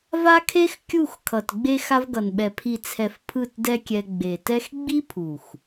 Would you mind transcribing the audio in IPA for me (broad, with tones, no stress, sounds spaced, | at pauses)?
v a˦ kʰ e˦ x kʲ u˦˨ x kʰ ʌ˨ t ɡ͡b e˧ x a˧ v ɡ ʌ˨ n ɓ ɛ˨ pʰ i˨ t͡sʰ ɛ˨ f pʰ ɯ˦˨ t d ɛ˦ kʲ ɛ˧ ɡ͡b e˨ t ɛ˦ x ɡ͡b i˦ pʰ u˨ x